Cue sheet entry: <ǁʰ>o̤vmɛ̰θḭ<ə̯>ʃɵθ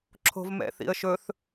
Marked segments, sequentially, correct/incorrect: correct, correct

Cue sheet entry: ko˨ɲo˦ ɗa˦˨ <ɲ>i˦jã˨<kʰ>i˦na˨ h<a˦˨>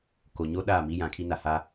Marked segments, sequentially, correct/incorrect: incorrect, correct, incorrect

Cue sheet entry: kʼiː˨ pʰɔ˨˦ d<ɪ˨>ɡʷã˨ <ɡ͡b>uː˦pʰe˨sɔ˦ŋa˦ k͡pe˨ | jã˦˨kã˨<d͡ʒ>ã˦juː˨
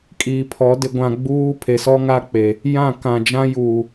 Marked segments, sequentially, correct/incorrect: correct, correct, correct

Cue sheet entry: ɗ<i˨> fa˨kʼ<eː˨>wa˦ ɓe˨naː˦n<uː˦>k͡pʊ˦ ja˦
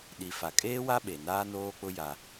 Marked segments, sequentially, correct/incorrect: correct, incorrect, incorrect

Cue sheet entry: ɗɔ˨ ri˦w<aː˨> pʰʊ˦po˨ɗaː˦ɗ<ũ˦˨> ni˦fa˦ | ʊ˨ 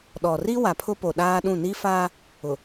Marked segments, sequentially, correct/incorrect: incorrect, correct

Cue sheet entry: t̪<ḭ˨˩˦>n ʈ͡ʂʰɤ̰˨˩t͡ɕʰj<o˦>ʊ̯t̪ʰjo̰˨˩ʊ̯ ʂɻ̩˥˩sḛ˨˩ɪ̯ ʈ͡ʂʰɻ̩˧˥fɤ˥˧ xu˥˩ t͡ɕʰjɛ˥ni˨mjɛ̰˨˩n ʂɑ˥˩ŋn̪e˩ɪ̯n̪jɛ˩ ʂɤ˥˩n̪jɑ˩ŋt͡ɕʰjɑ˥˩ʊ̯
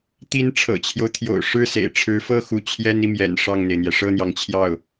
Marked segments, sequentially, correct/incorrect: incorrect, correct

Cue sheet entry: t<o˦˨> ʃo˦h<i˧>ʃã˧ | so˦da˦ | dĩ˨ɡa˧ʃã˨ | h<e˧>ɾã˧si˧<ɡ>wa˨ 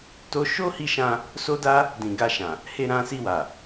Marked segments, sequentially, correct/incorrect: incorrect, correct, correct, incorrect

